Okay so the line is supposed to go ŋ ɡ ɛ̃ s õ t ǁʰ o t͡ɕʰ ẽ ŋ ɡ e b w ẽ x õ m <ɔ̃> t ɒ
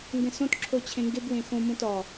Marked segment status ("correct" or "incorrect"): incorrect